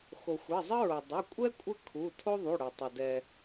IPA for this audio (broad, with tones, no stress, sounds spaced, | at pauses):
x o˩ xʷ ɛ˩˧˩ zˤ ə˦ ɹ o˩ dˤ o˩˧˩ kʷʼ ɛ˦ kʷʼ ə˦ kʰ u˩˧˩ tʰ o˦ ðˤ u˩˧˩ ɽ o˩ tˤ ə˩ d ɛ˩